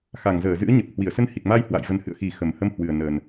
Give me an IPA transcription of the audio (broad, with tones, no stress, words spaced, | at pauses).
xa˨˩ŋzəː˧˩zɨ̰˧˥ə̯ ɲə˨˩p̚hwi˧˩ə̯sə˧n hi˨˩k̚ma˧jhwa̰˧˨j və˨˩nhɨ̰˧˨ə̯xi˨˩ xə˨˩mhə˧mhwɨ˨˩ə̯ nəː˨˩n